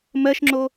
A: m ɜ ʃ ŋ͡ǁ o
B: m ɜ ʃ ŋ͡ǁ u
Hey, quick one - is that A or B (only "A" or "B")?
A